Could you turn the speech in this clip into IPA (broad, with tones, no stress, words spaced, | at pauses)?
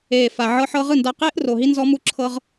eː˨fa˨ ʕɤ˧ħɤ˧ʁɯ˦˨nda˧ qeː˦ʔro˨ ɦi˦nzɔ˦mu˦ ǁʰɤ˦ʁ